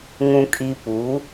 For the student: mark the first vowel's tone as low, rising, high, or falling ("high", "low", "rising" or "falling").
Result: low